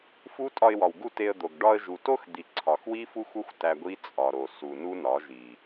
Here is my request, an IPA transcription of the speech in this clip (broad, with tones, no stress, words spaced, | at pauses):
fu˦ tʼɒ˧ɪ̯wɒ˨wɡu˦˨ te˧ə̯d̪o˨ɡ ɖɒ˧ə̯ ʒu˨to˦xd̪i˨ ǀʰɒ˨xwi˦fu˦xʷo˦xʷ tæ˧ɡʷi˦ t͡sʼɒ˨ɾo˨ su˨nu˦nɒ˨˦ʒi˨